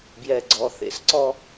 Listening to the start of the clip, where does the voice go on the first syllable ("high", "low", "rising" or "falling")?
low